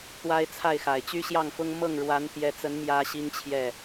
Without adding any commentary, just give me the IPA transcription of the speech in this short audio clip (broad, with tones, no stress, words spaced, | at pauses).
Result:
t̪wa˥ɪ̯t͡sʰa˥˩ɪ̯xa˨˩ɪ̯ t͡ɕy˥ɕjɑ˥˩ŋfʊ˥ŋ mɤ˥˩ŋɻwa˧˥nt̪jɛ˧˥t͡sə˧˥n mjä˥ɕi˥ŋt͡ɕʰjɛ˥˩